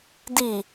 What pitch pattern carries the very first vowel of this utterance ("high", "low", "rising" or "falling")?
low